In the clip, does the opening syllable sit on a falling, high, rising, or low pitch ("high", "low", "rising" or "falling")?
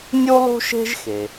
high